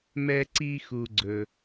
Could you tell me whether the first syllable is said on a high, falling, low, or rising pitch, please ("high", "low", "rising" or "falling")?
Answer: low